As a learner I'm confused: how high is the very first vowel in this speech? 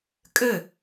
mid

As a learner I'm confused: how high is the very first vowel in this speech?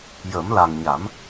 mid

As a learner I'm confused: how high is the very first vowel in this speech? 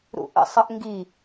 high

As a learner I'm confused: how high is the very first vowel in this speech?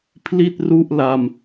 high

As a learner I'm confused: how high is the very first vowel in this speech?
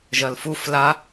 low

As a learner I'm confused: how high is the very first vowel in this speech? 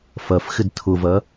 low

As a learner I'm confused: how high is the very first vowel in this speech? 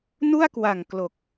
high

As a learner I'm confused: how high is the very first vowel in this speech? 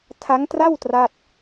low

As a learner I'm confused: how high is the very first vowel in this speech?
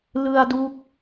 high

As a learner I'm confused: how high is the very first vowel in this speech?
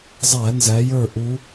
low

